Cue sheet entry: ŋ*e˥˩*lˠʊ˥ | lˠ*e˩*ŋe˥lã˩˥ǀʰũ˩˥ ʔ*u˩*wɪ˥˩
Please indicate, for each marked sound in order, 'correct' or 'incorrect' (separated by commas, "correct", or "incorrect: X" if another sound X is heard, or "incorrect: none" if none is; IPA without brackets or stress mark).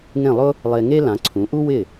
incorrect: ẽ˥˩, incorrect: e˧, incorrect: u˥